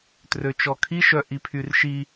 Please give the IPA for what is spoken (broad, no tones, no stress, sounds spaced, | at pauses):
t r ø t͡ʃ ɔ kʰ i ʃ œ ʔ i pʰ y r ʃ i